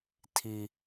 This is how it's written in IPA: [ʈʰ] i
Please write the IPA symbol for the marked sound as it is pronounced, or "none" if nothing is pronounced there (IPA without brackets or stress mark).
tʰ